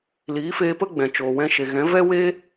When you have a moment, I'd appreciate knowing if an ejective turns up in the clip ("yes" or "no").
no